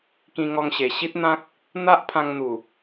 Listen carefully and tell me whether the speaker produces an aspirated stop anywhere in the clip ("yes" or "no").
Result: yes